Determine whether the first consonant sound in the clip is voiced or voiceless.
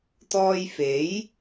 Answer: voiceless